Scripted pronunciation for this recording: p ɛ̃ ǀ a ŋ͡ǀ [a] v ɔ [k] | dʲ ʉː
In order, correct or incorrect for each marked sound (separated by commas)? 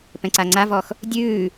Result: correct, incorrect